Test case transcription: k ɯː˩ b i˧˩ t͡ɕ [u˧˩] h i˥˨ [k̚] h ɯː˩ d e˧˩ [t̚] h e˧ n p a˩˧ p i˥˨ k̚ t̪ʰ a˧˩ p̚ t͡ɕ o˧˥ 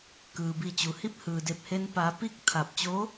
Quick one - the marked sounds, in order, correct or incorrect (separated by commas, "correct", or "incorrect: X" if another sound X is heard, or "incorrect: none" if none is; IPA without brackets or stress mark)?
incorrect: u˩, incorrect: p̚, incorrect: p̚